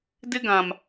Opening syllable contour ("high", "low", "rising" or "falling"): high